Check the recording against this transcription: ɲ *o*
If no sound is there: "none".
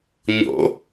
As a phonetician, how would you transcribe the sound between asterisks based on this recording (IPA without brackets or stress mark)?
o̰